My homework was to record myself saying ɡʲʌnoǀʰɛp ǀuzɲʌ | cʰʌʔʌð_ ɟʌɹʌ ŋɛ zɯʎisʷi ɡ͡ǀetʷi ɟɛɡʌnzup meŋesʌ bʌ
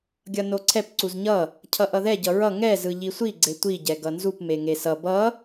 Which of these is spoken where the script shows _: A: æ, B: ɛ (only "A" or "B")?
B